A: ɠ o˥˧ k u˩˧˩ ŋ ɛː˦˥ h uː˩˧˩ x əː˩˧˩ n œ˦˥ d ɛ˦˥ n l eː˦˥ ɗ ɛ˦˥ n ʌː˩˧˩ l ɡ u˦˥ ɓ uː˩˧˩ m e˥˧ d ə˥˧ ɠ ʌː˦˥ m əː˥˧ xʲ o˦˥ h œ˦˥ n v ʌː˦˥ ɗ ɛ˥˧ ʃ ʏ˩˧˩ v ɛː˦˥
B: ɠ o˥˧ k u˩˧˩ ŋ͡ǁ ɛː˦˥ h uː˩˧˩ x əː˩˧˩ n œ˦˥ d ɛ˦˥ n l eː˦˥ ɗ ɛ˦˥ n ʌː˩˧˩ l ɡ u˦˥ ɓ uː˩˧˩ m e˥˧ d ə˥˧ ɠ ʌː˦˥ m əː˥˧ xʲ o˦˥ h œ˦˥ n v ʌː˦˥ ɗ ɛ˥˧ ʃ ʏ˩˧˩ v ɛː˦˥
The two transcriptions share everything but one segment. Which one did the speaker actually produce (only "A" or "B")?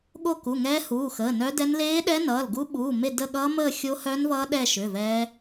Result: A